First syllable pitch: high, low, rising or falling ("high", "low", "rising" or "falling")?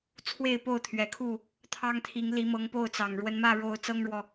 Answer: falling